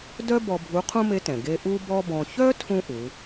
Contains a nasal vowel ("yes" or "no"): yes